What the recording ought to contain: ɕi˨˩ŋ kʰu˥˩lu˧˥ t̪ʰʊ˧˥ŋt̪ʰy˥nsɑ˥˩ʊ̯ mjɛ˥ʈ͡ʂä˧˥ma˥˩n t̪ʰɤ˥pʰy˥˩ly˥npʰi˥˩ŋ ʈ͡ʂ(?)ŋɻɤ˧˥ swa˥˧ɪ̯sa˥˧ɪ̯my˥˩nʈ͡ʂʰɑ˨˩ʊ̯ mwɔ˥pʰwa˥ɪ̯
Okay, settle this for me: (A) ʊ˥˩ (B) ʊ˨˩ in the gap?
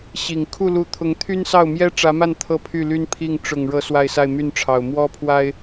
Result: B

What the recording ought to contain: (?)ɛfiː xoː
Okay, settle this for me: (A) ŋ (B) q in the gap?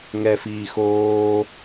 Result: A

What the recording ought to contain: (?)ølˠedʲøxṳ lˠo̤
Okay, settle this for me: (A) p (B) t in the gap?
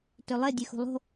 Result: B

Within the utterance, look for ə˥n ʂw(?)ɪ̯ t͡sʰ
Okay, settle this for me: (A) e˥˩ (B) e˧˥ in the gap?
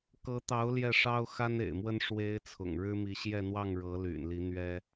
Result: B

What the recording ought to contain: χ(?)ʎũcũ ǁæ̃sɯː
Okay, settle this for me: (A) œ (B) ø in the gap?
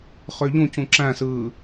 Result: B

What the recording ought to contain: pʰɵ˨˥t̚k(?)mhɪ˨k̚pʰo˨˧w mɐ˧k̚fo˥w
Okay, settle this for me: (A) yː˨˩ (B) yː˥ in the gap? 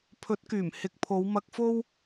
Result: A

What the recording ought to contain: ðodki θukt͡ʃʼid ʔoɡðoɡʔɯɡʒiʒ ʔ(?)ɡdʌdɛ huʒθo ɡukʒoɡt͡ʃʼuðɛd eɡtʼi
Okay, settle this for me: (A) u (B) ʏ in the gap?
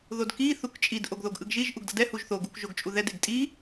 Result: A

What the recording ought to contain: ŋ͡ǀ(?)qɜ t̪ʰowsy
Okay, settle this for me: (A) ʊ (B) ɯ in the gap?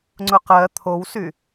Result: A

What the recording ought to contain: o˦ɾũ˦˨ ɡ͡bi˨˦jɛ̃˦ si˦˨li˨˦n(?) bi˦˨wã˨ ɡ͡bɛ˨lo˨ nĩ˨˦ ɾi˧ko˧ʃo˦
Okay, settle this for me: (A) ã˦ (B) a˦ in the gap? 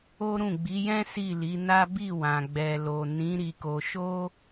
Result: B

